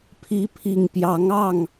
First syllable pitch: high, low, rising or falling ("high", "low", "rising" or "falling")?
rising